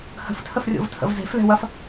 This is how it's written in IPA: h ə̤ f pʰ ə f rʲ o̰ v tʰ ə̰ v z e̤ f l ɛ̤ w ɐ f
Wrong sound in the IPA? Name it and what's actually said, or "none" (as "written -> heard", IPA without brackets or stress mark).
pʰ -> tʰ